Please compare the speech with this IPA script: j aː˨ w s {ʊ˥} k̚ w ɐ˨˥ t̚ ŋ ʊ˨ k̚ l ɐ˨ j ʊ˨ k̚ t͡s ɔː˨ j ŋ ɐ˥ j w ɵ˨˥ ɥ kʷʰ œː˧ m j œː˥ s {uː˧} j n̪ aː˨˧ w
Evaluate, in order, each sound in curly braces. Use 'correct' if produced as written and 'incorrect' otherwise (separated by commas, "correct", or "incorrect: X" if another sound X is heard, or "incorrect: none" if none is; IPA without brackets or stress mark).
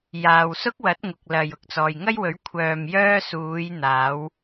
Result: correct, incorrect: uː˨˧